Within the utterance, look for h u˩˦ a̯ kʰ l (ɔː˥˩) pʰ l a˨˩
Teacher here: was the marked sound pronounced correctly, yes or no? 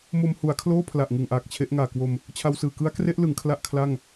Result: no